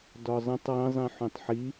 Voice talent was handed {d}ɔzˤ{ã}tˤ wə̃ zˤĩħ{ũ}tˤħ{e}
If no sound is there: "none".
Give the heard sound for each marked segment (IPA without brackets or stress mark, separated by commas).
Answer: d, ə̃, ũ, i